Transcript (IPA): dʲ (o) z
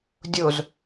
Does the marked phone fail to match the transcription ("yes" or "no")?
no